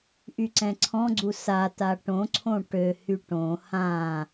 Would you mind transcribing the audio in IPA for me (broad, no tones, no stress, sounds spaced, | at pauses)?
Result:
ʔ y ǀ ɛ̃ ǀʰ ɔ̃ ɡ͡ǀ u s a t a ʈ õ ǀʰ õ ʈ ø h y ʈ õ h ã